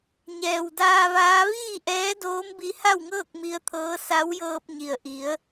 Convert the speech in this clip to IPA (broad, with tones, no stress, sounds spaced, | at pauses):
ɲ ɛː˩ w d aː˧ ʋ aː˧˥ ʋ iː˥˨ ʔ ɛː˧˥ d oː˧˥ m b i˧ h a˥˨ w ŋ ɤː˥˨ k̚ m i˧˥ ə̯ t̪ʰ ɤː˧˥ s a˧˥ w j ɤː˧ p̚ ɲ i˩ ə̯ ʔ i˩˧ ə̯